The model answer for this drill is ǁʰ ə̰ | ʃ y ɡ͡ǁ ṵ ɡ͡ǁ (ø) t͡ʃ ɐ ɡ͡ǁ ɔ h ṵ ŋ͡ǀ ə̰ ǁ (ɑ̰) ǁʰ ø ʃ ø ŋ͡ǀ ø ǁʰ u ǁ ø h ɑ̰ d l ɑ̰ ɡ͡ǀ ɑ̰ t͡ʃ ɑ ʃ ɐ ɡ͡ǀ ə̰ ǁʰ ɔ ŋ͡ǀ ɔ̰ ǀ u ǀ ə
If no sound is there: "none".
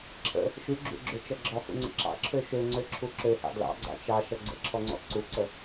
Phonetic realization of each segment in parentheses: ø, ɑ̰

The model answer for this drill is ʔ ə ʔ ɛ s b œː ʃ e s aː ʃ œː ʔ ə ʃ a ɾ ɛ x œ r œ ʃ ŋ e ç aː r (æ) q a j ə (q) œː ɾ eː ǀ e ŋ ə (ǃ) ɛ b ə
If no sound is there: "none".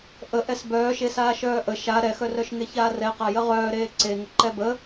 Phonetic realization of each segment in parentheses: ɛ, ʁ, ǃ

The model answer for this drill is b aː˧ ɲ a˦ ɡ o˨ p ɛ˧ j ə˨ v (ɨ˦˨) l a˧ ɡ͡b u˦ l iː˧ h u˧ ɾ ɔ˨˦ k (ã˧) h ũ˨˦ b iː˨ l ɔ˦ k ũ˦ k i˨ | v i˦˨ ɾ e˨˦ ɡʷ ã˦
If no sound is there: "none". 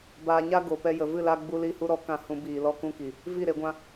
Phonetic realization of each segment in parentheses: ɨ˦˨, ã˧

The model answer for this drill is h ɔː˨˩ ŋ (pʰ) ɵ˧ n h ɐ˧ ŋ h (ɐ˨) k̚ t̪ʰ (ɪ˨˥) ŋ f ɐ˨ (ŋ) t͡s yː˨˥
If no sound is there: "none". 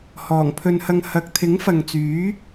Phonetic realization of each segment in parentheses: pʰ, ɐ˨, ɪ˨˥, ŋ

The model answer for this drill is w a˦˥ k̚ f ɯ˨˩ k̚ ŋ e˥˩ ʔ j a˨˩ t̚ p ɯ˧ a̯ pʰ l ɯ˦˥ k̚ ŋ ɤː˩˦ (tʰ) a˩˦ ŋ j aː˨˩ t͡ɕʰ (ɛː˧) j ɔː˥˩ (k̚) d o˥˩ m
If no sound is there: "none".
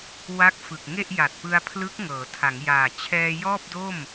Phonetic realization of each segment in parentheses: tʰ, ɛː˧, p̚

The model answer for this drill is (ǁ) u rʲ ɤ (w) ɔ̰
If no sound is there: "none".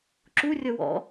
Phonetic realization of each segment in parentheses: ǁ, w

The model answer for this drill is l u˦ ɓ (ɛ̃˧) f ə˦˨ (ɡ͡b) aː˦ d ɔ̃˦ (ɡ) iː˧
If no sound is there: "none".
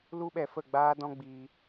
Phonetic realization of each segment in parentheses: ɛ˧, ɡ͡b, ɡ͡b

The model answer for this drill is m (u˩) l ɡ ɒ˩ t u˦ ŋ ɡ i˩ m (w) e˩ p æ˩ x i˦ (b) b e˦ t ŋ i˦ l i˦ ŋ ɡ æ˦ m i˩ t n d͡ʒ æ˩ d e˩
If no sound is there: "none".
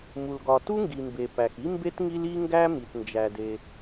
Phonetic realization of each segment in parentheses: u˩, b, m

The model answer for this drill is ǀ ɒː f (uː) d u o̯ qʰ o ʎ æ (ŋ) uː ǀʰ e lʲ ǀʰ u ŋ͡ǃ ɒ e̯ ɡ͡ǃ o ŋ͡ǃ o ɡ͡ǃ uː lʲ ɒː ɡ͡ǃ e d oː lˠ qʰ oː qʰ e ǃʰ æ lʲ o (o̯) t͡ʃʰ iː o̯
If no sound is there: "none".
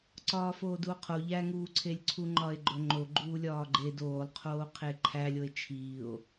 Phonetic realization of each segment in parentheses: oː, ŋ, e̯

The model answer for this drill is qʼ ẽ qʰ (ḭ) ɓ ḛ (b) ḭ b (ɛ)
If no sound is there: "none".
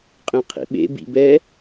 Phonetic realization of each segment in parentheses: ḭ, b, ɛ

